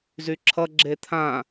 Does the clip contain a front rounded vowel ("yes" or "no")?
yes